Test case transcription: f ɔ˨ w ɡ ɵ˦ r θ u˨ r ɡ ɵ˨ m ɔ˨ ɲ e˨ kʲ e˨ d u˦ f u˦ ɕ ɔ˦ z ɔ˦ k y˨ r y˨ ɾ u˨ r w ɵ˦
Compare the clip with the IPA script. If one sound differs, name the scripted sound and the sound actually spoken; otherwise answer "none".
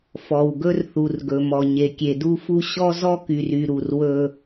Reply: none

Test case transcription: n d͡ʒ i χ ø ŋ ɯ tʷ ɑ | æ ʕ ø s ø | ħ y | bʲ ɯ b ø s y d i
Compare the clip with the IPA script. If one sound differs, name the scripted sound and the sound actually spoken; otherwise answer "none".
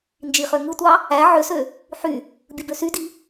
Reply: none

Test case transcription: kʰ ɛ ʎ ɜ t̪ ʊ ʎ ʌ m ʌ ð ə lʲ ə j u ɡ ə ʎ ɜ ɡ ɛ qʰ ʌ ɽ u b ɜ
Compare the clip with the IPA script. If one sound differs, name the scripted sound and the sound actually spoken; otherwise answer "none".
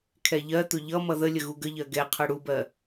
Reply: j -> ɣ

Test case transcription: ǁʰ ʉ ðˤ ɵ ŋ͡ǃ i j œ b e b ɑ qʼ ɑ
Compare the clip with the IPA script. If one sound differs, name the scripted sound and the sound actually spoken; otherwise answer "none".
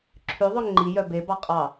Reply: none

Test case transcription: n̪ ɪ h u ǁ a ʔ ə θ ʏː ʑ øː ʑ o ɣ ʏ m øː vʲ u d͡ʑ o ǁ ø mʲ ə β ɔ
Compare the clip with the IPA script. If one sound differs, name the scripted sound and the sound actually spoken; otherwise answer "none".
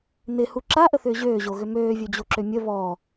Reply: none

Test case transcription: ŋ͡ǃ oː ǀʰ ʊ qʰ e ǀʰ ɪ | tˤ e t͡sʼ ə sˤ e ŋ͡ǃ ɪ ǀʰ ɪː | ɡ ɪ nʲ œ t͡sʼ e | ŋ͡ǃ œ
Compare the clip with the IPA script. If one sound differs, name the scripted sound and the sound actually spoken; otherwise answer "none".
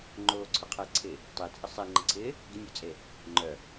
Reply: none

